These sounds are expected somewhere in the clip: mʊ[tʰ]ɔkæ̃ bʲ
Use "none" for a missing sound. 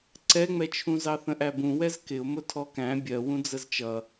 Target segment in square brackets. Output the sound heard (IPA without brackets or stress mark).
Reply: tʰ